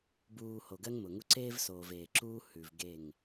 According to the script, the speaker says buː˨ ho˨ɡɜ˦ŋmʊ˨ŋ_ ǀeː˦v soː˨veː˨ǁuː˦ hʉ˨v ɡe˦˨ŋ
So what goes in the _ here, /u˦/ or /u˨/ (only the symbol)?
u˦